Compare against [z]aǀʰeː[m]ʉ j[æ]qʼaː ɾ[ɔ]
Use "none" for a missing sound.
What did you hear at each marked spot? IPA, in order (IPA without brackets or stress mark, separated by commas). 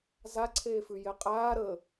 z, f, ɛ, ə